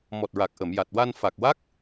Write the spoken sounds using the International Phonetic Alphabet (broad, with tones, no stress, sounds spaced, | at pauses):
m ɔ˨˩ t̚ ɹ a˨˩ k̚ ʔ ə˨˩˨ m j a˨˩ t̚ w a˧ n f a˨˩ k̚ w a˦˥ k̚